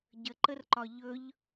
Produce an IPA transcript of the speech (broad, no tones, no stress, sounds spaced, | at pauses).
ɟ ə ǃ ə r ǃ ɒ ʎ ɵ ʎ